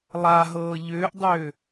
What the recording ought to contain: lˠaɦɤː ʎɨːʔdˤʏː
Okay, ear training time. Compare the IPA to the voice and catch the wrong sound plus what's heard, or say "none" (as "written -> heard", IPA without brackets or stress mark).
ɨː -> ʏː